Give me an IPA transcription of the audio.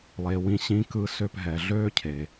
lˠe˩wĩ˧ ɕĩ˧kɯ˧ sø˧pɦɛ˩ ɮøː˥cʰe˩

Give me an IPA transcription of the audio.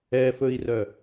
ɛfɵi̯rœ

